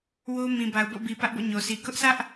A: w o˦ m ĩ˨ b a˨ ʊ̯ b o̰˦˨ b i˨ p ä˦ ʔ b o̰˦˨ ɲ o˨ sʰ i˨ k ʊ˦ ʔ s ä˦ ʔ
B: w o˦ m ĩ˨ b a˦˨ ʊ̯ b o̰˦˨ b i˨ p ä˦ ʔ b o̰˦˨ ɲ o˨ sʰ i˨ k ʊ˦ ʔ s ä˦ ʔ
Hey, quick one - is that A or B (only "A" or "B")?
A